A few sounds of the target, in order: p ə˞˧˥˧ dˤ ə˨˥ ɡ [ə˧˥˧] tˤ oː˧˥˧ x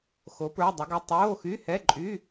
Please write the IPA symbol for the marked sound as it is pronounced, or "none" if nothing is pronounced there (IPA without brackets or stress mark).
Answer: ə˧˥˧